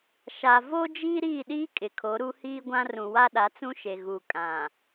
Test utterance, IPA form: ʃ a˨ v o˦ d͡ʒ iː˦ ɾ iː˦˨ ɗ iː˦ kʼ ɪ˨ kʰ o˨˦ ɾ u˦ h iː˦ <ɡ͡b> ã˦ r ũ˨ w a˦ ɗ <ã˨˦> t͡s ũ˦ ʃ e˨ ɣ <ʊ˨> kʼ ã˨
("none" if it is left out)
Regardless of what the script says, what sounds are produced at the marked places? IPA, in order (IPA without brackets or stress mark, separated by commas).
ɡʷ, a˨˦, u˨